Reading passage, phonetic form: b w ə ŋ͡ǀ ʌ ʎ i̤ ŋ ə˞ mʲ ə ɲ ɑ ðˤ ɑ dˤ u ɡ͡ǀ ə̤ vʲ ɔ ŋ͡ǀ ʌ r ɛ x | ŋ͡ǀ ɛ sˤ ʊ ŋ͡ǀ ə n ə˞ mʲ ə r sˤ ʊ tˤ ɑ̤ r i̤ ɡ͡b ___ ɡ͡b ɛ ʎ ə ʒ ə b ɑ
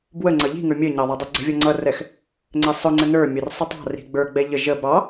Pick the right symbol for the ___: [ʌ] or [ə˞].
ə˞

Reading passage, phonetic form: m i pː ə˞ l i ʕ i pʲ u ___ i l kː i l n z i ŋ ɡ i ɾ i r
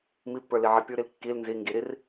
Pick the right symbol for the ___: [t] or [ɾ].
ɾ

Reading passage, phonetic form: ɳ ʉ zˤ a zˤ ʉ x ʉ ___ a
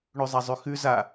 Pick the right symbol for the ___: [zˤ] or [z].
z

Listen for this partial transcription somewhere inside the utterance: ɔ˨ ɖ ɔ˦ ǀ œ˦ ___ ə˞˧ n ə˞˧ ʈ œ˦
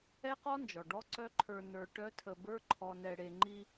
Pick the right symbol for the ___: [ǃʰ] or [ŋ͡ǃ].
ǃʰ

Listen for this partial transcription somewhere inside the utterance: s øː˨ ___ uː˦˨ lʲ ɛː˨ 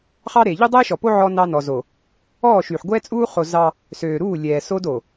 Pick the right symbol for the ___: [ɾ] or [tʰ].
ɾ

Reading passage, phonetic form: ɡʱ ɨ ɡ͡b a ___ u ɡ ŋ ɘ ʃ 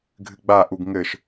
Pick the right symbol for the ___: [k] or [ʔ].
ʔ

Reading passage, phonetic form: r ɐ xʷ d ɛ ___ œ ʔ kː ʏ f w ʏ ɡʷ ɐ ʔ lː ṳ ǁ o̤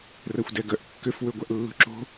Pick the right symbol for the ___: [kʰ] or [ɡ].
ɡ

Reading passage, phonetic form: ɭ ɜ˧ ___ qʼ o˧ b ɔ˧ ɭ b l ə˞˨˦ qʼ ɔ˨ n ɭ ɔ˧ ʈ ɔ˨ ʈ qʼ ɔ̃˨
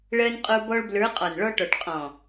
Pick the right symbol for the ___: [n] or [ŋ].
n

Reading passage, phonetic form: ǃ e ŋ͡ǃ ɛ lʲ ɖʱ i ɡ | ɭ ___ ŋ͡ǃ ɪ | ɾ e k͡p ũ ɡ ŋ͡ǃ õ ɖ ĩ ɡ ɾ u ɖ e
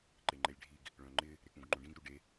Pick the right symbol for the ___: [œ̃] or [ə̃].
œ̃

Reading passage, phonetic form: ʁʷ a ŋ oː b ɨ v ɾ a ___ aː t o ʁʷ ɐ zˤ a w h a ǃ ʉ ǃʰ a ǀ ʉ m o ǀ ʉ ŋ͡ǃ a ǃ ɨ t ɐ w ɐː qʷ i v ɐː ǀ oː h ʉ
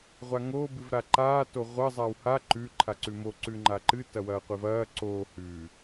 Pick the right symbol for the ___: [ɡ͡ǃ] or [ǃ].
ǃ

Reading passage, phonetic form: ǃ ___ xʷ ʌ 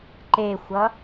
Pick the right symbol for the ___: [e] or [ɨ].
e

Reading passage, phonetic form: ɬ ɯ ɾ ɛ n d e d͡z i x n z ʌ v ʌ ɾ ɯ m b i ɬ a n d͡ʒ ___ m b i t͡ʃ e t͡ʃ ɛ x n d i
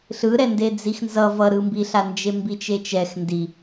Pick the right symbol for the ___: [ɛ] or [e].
e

